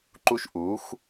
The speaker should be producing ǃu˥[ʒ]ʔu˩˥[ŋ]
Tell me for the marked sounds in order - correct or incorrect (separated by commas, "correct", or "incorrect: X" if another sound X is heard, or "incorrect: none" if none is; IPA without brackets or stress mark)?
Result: incorrect: ʃ, incorrect: x